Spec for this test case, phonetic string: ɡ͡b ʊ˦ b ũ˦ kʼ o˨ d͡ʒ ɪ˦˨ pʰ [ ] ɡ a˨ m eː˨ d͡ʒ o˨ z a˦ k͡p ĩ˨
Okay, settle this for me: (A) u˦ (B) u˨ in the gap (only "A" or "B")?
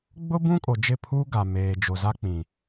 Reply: A